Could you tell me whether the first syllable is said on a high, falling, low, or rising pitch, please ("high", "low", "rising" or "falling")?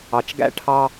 low